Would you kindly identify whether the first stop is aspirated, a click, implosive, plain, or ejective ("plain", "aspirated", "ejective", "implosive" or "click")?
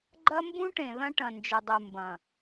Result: click